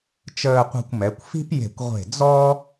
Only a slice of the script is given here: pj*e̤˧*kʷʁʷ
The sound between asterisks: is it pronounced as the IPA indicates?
no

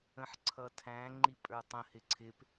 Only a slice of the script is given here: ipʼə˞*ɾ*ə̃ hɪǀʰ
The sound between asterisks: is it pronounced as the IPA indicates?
no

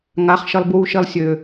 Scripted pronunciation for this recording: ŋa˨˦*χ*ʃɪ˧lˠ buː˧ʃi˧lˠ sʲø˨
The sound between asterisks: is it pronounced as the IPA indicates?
yes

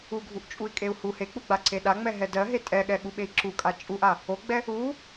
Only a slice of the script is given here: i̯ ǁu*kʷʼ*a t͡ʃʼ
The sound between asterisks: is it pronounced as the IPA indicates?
no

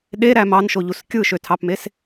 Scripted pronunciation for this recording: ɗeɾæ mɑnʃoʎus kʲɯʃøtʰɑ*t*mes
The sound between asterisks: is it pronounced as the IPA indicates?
no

